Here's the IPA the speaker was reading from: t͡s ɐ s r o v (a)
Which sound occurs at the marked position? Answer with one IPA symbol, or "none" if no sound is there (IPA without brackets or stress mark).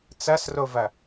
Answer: ɐ